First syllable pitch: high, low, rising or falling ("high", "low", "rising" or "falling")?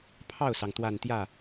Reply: falling